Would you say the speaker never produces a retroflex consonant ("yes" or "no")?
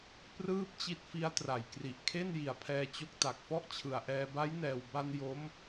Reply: yes